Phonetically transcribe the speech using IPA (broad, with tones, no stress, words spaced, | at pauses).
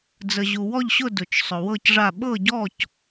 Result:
d͡zə˩ʑu˩ wɔ˥˨ʎɕʊ˥˨ dʊ˩t͡ʃsˤʊ˩wɤ˥˨cʐa˥˨ ɓɤ˥˨ɟɔ˥˨c